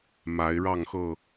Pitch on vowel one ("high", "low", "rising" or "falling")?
rising